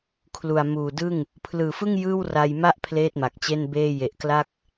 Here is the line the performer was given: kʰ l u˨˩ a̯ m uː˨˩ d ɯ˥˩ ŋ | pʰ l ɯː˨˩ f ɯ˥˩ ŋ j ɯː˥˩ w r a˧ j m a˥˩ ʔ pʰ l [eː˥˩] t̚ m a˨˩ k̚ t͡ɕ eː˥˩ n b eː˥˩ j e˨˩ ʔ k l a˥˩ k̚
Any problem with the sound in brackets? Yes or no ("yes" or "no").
no